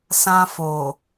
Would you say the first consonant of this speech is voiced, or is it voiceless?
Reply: voiceless